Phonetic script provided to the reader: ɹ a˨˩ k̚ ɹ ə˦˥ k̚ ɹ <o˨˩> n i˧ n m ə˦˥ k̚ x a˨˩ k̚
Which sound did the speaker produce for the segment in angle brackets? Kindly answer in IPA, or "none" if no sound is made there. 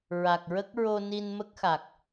o˧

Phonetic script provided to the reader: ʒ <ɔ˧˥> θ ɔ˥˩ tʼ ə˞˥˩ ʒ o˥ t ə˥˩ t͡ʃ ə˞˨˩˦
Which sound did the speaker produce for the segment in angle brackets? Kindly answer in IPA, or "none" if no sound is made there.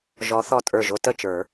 ɔ˧˥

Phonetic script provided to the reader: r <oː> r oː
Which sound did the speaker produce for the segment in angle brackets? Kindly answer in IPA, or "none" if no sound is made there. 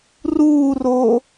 uː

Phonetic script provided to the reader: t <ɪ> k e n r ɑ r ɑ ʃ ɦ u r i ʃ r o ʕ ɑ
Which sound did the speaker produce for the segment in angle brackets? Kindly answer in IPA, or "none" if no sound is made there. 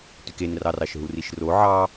y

